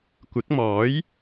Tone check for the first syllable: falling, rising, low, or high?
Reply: rising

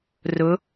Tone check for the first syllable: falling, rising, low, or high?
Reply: rising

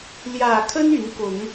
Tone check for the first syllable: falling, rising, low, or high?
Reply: low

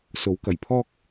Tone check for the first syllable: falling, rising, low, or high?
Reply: rising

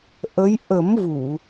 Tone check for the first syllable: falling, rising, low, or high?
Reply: rising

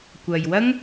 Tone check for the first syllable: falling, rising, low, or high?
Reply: low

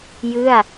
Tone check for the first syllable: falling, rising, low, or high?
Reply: falling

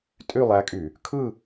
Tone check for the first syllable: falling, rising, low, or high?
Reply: falling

